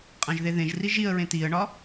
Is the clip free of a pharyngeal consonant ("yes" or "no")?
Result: yes